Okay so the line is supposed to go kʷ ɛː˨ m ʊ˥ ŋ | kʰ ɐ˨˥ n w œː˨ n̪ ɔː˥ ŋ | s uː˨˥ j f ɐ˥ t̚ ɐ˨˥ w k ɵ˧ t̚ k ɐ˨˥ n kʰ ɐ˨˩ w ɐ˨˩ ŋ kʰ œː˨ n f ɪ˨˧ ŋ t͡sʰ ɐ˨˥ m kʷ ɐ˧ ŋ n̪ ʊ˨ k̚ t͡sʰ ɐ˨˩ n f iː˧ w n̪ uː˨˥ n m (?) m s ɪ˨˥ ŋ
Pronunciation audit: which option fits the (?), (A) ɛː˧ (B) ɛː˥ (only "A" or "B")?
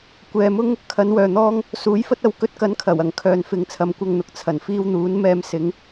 A